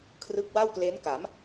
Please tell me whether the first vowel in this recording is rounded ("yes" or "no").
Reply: no